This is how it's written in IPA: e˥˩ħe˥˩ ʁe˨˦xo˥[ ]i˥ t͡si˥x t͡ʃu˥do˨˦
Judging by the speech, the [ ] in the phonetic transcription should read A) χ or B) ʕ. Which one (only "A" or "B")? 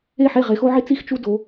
B